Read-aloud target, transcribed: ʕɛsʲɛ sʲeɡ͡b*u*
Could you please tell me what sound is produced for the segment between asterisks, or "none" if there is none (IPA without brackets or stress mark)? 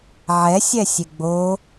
o